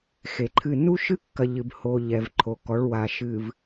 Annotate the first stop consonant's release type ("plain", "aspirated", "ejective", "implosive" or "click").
click